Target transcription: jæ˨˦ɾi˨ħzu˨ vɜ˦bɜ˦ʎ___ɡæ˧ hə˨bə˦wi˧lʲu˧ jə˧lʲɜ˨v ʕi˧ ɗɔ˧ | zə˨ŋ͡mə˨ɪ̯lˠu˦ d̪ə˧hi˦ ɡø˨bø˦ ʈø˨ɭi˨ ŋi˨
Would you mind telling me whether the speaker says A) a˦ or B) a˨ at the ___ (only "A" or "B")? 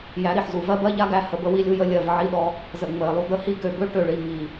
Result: A